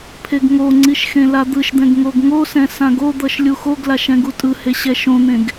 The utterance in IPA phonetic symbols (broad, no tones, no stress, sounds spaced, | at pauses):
pʰ e ɡ ŋ o ŋ͡ǀ i ʃ x ẽ l a d̪ ɯ ʃ d̪ ɛ̃ ɡ ŋ o ɡ ŋ o s ɛ̃ s ã ɡ o d̪ ʌ ʃ lʲ u x o ɡ l a ʃ ɛ̃ ɡ u tʼ ɯ h e ɕ ɛ ʃ õ n̪ ẽ ɡ